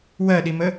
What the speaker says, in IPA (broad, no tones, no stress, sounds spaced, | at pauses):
w ɜ ɗ i m ə